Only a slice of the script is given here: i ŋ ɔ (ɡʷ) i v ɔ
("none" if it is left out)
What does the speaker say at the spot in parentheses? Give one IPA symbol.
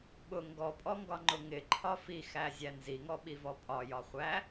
ɓ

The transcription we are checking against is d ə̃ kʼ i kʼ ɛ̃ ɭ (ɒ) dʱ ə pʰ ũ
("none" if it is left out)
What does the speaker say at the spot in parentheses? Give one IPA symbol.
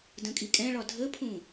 ɒ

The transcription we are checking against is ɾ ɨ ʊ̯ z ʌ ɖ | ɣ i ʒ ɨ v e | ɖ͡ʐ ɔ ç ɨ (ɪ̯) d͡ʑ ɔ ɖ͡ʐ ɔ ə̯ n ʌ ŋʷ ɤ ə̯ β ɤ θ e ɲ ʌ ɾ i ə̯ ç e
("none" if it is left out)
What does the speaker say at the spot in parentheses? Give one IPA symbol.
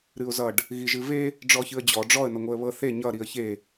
ə̯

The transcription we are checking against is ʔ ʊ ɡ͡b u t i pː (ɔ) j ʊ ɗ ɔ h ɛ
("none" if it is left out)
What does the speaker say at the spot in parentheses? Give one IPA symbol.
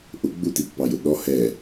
ɑ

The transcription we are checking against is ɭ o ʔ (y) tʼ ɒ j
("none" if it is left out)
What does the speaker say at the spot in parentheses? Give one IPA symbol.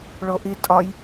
i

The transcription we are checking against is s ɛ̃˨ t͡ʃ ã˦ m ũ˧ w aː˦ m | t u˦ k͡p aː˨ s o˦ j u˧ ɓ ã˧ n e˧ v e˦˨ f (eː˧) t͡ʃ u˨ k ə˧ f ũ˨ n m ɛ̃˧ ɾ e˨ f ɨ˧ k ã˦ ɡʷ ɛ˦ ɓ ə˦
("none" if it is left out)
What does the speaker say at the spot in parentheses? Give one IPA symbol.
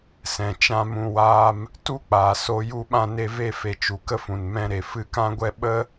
e˧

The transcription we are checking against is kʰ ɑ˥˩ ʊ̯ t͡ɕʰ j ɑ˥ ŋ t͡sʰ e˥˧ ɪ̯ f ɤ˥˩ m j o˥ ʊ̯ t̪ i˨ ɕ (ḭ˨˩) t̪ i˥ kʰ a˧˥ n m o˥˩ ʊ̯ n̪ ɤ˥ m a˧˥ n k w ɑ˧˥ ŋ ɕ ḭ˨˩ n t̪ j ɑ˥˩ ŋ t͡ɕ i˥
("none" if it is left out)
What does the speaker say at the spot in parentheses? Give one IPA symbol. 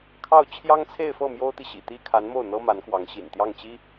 ḭ˨˩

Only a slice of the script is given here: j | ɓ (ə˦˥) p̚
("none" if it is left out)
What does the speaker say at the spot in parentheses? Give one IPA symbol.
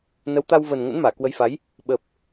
ə˨˩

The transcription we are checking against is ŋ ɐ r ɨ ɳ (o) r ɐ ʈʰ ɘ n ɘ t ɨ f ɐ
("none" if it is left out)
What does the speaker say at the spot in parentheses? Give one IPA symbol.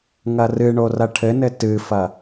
o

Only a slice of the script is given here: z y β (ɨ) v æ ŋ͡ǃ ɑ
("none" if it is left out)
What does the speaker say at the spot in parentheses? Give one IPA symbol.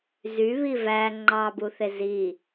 i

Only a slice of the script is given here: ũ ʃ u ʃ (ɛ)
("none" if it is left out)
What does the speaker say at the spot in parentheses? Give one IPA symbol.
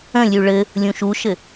ɘ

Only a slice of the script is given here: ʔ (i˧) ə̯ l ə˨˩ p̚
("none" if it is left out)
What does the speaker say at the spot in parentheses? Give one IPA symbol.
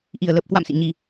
i˨˩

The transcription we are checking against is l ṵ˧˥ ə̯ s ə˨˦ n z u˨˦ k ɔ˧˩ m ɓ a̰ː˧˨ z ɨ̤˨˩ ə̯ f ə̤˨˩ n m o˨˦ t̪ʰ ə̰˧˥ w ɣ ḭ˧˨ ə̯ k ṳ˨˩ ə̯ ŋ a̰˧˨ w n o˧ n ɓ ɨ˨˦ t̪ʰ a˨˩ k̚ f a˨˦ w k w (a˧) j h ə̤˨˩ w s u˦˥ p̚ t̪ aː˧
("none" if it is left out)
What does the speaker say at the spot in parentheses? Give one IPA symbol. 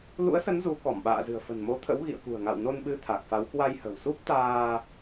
a˧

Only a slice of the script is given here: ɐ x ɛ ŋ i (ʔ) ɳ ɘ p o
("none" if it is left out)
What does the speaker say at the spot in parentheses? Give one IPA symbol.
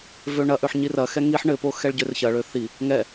ħ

